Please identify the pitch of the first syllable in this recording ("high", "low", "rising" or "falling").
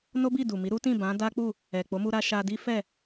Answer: high